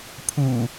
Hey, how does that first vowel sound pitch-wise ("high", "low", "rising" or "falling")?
low